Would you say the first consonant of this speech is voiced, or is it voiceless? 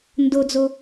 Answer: voiced